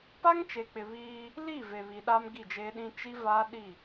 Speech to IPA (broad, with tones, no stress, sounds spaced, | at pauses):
p a˦ ŋ t͡ʃ e˨ k͡p ɪ˨ β iː˦ | l i˦˨ v e˨ β i˨ ɗ a˦ m ɡ i˦˨ d͡ʒ eː˦ ɗ ĩ˦ t͡ʃ i˦ v aː˦ ɗ i˦˨